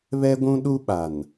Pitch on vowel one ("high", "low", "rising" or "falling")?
high